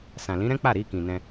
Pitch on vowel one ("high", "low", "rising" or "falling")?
low